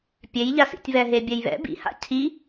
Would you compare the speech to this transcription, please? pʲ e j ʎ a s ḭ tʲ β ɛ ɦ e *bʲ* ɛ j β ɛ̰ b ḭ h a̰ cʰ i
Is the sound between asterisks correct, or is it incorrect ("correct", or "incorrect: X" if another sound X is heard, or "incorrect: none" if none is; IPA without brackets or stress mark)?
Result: correct